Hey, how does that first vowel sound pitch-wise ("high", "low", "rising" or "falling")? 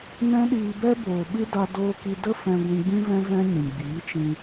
high